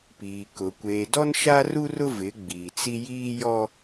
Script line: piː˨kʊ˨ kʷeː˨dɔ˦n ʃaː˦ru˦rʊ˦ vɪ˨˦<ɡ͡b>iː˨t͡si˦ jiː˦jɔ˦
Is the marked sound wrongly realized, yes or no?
no